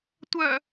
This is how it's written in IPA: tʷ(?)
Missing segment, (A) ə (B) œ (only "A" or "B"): B